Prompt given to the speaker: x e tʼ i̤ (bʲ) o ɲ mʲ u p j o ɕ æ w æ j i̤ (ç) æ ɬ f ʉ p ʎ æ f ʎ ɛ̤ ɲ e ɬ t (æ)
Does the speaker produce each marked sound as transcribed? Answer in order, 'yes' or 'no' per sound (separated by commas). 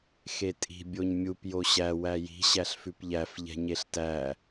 yes, no, yes